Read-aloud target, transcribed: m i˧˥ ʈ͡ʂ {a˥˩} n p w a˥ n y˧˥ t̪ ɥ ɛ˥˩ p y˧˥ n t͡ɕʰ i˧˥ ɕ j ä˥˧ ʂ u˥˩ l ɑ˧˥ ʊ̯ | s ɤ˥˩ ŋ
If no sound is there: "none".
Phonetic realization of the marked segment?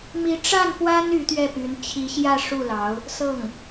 a˥˩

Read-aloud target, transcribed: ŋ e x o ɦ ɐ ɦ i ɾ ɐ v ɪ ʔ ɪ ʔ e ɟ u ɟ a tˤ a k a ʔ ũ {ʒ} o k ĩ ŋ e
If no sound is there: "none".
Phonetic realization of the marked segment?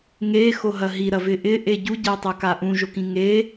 ʒ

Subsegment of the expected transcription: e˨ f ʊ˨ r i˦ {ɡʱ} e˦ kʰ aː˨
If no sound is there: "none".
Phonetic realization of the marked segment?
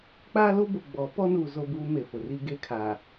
ɡ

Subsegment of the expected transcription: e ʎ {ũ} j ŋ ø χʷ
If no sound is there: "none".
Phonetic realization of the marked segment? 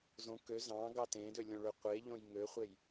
õ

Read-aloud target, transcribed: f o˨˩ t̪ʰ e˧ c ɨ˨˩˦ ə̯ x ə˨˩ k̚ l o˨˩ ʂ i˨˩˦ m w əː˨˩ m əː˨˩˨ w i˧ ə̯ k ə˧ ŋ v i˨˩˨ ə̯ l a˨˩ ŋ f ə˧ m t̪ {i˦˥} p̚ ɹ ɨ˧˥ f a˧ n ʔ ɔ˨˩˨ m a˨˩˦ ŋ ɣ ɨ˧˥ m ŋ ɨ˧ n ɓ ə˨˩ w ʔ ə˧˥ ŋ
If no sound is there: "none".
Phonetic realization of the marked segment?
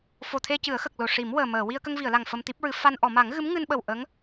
i˦˥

